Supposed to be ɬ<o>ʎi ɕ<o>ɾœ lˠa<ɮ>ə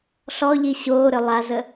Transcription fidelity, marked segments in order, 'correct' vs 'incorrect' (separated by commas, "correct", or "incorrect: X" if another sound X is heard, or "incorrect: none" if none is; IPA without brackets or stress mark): incorrect: ɔ, incorrect: oː, incorrect: z